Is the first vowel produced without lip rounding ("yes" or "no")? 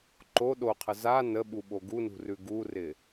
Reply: no